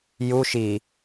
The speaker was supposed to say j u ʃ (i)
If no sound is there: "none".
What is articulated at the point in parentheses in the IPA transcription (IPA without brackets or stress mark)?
i